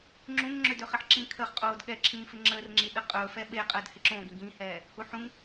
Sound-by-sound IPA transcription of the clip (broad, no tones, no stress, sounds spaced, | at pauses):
ŋ͡ǁ ũ ŋ ŋ͡ǁ ø d ø χ ɪ ħ ǁ ĩ kʰ ə χ qʼ oː d ɠ ɛ ǁʰ ĩː f ɪ ŋ͡ǁ əː r ŋ͡ǁ i ɗ ə qʼ ɵ f ɛ ɓ e qʼ əː d h ɪ ǁ õ ɡ ĩ ɡ ĩ h ɛː | h u ħ ũ ŋ